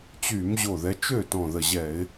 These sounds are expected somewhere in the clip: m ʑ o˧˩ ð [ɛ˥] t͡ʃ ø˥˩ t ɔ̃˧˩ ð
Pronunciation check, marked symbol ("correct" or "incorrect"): incorrect